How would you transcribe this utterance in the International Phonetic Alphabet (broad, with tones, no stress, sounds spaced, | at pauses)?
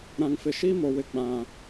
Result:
ɾ ã˨ ŋ f ɪ˨ ʃ i˦ m o˨ w ɪ˨ ɡ͡b ã˨